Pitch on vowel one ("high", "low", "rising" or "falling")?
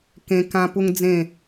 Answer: high